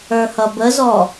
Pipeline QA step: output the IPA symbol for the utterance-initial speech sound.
ə˞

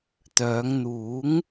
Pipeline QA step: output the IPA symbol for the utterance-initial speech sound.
t̪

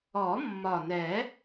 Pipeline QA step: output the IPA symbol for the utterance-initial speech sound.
ɔ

